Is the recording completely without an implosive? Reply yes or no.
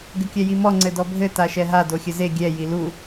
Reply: yes